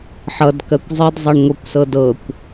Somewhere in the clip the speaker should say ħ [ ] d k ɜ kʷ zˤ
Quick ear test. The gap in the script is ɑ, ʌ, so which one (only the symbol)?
ʌ